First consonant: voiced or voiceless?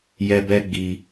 voiced